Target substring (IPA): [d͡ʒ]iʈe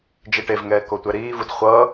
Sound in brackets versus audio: correct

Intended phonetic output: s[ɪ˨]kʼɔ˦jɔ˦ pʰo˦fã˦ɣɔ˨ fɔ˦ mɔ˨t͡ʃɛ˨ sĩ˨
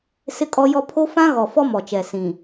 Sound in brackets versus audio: incorrect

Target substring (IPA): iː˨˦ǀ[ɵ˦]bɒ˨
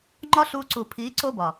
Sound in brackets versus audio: incorrect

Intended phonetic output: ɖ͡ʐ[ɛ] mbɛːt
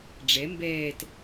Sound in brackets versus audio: correct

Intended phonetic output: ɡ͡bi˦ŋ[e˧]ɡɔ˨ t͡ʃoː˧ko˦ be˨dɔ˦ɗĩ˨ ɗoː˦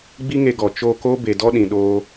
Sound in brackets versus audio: correct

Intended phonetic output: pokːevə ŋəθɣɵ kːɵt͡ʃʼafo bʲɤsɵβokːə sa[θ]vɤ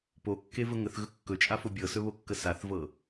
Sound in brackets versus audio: correct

